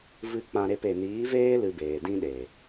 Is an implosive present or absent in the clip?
present